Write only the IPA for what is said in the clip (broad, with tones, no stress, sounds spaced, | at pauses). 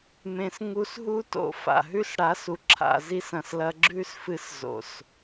m ẽ˨ s ŋ u˧ s ɦ u˦ t o̰˧ f a̰˨ ɦ ʉ˦ s ɽ a˨˦ s u˨ ǁʰ a̰˧ z i˦ s ɐ̃˨ s l ɐ˧ ɡ͡ǁ ʉ˦ s f ɨ˧ s z o̰˨ s